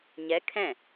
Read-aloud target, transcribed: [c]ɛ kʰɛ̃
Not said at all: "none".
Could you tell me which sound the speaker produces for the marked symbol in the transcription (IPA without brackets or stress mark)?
ɲ